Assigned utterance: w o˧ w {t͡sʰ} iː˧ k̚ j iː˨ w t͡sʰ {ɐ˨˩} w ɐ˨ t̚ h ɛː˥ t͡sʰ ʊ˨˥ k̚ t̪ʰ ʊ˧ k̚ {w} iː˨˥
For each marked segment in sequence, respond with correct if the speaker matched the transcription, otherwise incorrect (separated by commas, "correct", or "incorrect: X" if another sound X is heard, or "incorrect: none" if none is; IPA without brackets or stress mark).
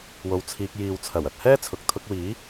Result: correct, correct, correct